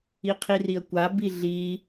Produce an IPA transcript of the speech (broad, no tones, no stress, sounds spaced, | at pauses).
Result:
i qʰ i r i ə̯ kʷ a b i ɮ i